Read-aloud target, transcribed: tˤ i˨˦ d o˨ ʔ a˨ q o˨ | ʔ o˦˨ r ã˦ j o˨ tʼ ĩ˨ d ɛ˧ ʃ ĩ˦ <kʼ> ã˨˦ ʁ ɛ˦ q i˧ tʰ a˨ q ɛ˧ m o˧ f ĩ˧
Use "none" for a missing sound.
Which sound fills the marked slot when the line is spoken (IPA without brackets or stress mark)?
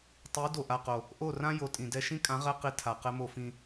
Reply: kʼ